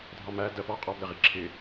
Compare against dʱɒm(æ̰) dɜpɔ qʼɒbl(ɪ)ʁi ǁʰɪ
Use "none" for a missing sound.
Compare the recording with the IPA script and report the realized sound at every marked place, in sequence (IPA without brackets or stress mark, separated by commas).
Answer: æ, ɪ